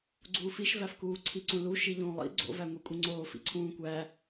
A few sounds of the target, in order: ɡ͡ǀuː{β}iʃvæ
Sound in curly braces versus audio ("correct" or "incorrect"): incorrect